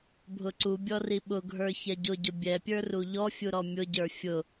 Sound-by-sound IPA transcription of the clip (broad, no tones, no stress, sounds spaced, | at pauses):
bʱ ʊ ǀ u bʲ ɔ r i ɓ ʊ ɡʱ ə˞ ç ɛ ɟ ʊ ɟ ʊ bʲ ɛ pʲ ə˞ r u ʎ ɔ fʲ u ɾ ɔ mʲ ʊ ɟ ə˞ fʲ ʊ